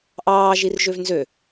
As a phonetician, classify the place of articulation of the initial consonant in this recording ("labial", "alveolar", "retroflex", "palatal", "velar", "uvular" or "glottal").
glottal